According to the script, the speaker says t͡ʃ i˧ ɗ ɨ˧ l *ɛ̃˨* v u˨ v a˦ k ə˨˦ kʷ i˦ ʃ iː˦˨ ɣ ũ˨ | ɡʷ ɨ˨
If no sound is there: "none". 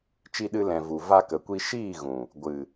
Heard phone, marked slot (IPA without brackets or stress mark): ɛ̃˨